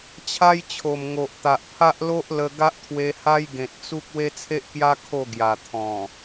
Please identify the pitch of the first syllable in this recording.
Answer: high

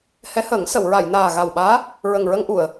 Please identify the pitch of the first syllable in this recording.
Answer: rising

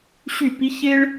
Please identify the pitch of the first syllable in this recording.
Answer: falling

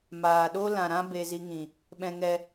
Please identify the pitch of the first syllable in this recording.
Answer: low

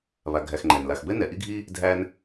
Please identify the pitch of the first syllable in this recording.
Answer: low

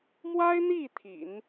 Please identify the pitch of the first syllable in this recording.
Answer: high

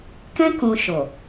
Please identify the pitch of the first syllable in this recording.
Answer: high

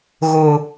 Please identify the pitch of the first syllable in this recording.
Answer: high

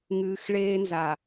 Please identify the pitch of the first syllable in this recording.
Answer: low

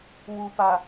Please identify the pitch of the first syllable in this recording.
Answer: low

